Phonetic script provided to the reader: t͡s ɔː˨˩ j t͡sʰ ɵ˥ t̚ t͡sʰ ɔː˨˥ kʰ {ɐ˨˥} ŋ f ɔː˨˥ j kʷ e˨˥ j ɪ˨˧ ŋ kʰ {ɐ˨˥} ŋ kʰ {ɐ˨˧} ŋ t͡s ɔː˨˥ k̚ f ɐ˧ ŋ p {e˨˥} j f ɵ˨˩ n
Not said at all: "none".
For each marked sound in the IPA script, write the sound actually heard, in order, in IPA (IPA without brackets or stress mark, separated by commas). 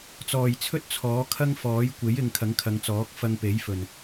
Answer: ɐ˥, ɐ˨˥, ɐ˨˧, e˨˥